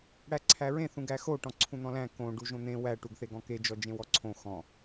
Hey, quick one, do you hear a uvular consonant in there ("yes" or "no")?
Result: no